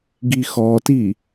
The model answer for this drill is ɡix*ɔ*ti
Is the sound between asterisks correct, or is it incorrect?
correct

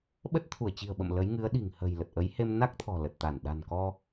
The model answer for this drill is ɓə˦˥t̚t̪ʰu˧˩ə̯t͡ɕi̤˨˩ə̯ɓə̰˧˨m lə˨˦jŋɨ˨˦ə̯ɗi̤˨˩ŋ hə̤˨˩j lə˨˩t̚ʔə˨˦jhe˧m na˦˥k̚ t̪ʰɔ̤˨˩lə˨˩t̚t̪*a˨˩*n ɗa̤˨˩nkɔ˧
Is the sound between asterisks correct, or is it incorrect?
incorrect: a˧˩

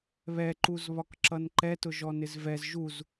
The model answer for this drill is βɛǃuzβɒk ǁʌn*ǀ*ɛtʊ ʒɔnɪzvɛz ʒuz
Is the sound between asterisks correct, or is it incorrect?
incorrect: ǃ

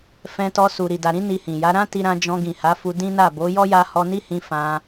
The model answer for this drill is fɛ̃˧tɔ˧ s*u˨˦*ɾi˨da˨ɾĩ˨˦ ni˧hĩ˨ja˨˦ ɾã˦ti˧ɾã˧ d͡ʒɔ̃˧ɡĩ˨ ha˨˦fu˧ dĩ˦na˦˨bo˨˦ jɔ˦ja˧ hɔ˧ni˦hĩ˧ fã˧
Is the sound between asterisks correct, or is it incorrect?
incorrect: u˨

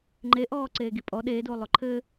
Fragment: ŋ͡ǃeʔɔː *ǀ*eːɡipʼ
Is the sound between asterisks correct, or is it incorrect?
correct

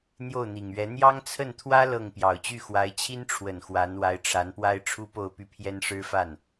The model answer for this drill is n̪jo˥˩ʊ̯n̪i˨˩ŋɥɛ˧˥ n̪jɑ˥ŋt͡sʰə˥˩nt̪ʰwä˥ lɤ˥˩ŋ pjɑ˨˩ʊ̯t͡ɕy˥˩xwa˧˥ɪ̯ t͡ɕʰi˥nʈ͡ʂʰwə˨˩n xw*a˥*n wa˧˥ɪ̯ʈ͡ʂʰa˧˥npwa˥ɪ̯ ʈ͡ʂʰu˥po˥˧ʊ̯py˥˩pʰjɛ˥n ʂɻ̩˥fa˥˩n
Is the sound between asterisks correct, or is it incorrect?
incorrect: a˧˥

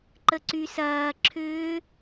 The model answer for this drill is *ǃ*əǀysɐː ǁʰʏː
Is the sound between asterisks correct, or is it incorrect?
correct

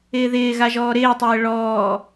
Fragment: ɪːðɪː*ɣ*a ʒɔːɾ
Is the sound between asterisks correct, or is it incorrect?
correct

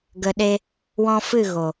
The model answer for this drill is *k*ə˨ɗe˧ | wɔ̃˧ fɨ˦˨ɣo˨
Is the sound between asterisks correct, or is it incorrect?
incorrect: ɡ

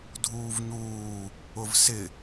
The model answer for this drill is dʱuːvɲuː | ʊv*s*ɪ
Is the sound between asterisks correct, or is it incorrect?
correct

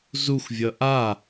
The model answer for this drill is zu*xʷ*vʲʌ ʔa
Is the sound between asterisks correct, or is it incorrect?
correct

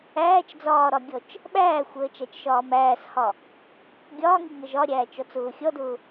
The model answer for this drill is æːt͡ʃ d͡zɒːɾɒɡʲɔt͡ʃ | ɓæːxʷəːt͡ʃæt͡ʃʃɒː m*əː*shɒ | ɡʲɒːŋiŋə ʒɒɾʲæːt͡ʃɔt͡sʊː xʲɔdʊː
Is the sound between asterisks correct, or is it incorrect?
incorrect: æː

